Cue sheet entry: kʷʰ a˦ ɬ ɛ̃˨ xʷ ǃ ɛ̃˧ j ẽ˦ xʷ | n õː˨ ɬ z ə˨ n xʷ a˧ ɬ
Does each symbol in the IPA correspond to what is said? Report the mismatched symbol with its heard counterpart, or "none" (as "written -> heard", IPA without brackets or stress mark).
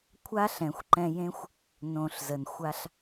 none